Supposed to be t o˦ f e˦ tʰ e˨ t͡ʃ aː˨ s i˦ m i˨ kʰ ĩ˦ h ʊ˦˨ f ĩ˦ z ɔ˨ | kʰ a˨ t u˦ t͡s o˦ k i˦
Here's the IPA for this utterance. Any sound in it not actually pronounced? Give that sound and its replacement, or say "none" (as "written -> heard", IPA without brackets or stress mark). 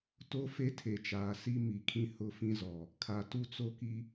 none